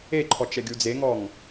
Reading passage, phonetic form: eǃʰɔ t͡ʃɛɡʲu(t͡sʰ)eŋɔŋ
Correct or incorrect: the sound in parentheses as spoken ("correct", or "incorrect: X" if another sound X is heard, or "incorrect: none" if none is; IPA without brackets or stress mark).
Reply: incorrect: d͡z